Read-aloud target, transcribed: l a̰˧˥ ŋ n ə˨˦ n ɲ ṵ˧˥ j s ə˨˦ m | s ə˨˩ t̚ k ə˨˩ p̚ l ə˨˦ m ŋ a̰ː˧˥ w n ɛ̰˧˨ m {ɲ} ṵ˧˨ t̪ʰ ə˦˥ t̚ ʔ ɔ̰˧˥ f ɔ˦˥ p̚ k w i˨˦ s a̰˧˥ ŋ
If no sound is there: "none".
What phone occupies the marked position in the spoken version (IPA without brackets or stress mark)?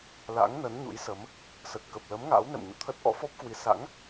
ɲ